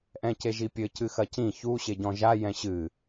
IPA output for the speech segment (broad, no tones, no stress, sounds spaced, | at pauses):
ʔ ɛ̃ c e ʒ i pʲ ɘ c ɨ x ɐ c ĩ ç u ɕ e ɟ ɔ̃ ʒ a j ɛ̃ ɕ ɨ